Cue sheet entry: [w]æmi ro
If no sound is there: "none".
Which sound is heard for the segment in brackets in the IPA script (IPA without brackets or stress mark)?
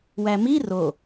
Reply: w